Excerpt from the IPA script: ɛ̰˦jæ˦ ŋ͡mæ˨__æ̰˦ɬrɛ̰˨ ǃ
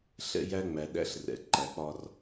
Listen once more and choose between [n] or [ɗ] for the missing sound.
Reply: ɗ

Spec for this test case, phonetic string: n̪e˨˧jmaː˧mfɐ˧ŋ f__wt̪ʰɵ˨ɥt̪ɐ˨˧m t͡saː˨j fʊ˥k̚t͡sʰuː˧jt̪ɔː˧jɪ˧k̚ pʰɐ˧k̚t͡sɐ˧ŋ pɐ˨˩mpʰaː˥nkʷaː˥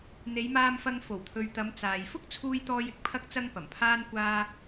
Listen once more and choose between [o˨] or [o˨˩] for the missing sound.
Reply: o˨˩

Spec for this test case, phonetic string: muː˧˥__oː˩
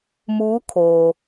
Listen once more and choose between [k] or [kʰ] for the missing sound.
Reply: kʰ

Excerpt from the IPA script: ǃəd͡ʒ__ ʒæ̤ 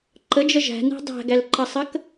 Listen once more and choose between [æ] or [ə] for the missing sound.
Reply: ə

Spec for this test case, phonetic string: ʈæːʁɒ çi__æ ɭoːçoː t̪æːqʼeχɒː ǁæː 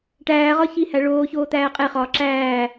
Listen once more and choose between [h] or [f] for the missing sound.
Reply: h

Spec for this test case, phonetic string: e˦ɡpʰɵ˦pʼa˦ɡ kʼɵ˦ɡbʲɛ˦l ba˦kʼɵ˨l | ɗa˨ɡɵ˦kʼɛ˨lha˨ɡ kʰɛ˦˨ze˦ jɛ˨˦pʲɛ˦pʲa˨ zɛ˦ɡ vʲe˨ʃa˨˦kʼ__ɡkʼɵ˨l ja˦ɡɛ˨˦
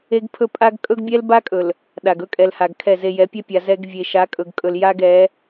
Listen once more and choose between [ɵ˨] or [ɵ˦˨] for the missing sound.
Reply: ɵ˨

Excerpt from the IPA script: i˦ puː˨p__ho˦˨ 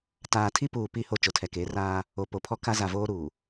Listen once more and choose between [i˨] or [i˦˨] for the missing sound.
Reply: i˦˨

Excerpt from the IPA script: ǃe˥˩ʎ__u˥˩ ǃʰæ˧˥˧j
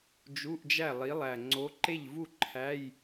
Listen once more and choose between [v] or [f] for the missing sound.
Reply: v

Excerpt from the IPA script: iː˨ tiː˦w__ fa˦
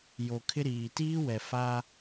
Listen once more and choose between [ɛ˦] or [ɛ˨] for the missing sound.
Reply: ɛ˨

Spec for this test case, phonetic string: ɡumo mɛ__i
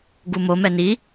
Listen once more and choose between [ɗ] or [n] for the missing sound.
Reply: n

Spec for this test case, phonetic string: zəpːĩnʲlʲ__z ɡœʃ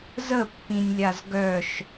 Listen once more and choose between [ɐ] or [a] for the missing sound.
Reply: a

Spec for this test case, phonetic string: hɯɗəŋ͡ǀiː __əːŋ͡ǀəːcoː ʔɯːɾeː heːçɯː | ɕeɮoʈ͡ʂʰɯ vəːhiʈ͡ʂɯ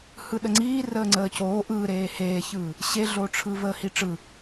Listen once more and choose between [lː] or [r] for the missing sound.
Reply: r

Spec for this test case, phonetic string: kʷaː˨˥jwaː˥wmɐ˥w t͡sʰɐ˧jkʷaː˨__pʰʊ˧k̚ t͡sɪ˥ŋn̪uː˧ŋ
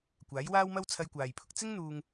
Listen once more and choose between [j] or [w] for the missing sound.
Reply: j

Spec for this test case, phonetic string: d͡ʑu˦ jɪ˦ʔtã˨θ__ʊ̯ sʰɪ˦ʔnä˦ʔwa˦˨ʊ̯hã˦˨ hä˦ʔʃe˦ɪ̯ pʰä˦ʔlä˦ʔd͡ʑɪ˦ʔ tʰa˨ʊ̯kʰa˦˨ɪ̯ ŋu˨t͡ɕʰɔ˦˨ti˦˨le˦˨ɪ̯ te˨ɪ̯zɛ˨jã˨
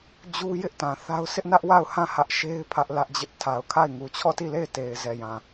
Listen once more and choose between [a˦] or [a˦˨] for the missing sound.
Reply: a˦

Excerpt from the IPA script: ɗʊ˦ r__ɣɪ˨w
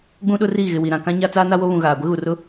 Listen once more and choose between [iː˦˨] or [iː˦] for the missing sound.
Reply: iː˦˨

